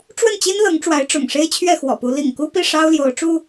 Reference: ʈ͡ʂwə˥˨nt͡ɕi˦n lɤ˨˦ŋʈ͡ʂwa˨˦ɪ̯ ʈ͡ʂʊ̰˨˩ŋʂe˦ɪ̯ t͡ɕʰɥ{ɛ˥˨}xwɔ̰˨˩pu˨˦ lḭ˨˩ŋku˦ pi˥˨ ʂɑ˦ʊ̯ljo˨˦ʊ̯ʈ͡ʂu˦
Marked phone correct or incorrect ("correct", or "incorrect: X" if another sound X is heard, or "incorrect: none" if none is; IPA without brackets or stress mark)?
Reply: correct